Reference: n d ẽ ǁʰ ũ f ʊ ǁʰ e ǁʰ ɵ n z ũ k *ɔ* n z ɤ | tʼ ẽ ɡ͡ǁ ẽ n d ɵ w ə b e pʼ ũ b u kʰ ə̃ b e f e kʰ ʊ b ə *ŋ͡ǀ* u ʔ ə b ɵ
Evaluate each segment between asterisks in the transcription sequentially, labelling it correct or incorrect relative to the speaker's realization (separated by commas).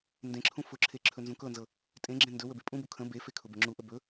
incorrect, incorrect